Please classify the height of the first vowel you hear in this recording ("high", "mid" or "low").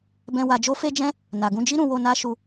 mid